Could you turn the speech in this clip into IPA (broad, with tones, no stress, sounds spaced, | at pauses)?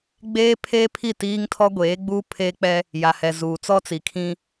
ɡ͡b eː˦ pʰ eː˦ pʰ i˦˨ t iː˦ ŋ tʰ ɔ˦ ɡʷ eː˨˦ ɡ͡b uː˦ pʰ eː˦ k͡p ɛ˦ | j a˨ h ɛ˨ z uː˨ t͡s ɔ˦ t͡s i˨ kʰ ĩ˦